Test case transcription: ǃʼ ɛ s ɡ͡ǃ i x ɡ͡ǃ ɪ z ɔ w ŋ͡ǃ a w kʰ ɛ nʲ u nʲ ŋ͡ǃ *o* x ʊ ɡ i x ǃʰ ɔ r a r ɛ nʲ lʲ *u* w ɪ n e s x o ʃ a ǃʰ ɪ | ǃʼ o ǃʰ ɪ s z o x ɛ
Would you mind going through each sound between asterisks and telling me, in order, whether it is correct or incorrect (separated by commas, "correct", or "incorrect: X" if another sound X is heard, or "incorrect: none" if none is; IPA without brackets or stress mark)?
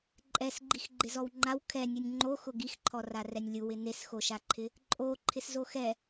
correct, correct